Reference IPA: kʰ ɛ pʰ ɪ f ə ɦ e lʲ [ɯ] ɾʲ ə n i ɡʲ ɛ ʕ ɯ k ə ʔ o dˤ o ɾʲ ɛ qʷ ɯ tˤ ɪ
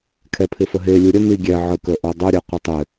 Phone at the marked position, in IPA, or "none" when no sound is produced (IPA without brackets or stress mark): ɯ